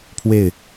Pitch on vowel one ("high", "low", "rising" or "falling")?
falling